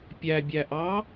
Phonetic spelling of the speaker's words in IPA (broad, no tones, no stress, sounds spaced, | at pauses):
pʲ æ bʲ æ ʔ ɑ